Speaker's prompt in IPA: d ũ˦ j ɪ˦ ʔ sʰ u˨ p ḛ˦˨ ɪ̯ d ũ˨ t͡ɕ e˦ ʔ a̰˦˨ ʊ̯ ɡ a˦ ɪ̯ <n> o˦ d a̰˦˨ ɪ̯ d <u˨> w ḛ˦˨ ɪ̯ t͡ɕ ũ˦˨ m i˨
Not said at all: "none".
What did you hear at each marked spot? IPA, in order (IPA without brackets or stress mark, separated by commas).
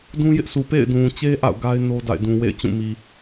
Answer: n, ũ˨